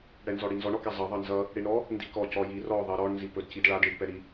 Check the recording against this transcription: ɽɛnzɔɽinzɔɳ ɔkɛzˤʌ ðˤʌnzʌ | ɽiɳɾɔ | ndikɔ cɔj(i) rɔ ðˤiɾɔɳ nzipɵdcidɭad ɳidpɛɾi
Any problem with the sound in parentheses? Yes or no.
no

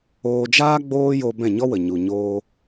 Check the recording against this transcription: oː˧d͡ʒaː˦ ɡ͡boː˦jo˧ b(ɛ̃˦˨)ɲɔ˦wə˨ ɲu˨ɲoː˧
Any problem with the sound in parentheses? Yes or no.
no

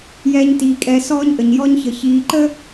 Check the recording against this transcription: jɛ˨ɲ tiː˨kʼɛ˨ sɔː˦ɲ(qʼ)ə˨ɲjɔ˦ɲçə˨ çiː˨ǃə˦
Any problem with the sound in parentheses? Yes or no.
yes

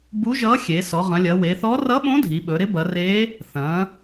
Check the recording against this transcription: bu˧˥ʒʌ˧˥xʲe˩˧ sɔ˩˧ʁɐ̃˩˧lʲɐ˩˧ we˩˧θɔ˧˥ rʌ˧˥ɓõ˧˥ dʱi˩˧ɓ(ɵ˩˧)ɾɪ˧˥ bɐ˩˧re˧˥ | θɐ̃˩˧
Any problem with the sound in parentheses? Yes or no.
no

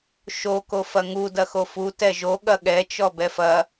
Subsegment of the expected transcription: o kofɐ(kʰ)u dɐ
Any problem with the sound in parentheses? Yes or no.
yes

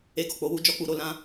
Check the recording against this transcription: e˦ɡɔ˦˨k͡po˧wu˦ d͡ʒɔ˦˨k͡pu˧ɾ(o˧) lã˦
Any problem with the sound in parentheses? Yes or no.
no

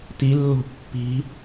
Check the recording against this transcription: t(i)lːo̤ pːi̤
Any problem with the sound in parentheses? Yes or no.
no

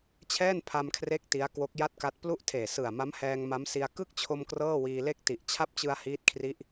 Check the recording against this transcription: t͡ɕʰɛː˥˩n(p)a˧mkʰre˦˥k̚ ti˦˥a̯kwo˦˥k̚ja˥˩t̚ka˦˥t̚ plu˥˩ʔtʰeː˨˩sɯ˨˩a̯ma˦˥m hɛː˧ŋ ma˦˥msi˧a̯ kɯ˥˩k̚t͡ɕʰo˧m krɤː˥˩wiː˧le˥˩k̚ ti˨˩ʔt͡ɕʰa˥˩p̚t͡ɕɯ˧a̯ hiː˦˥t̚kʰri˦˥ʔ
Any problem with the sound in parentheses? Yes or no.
yes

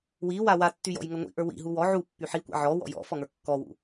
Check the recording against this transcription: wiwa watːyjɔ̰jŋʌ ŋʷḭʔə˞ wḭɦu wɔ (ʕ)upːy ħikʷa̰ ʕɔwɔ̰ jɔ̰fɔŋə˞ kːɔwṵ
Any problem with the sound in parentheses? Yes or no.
no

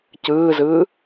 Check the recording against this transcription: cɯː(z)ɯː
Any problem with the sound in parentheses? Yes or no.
no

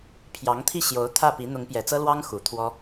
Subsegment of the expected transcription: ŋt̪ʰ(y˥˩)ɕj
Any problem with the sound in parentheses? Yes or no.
yes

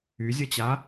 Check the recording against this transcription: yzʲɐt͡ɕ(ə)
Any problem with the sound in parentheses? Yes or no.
yes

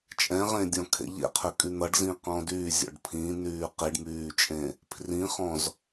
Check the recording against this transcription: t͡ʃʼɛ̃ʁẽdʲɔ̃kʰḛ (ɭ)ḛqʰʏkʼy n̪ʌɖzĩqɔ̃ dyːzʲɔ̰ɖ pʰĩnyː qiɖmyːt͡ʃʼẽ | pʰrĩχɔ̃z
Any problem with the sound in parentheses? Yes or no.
yes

